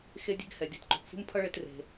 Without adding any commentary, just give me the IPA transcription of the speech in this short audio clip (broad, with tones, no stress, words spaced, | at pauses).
xe˧dʲe̤˧ɡhɛ˩ dʲa˧tǃṳ˩xfṳ˥m pʰʌ˥ ɭe˧t re̤˩